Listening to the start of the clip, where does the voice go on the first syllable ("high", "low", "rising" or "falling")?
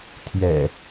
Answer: low